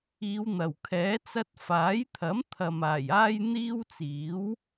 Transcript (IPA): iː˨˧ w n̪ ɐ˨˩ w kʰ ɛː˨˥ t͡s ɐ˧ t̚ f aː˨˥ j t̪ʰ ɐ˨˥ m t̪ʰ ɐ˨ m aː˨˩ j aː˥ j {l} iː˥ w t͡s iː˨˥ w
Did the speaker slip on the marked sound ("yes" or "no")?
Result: yes